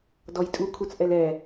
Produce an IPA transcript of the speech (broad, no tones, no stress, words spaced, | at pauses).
dɔjtʼu kʰut͡sʔɛlɛ